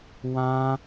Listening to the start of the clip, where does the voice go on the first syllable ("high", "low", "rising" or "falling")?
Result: high